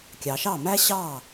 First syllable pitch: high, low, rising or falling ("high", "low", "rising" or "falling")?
low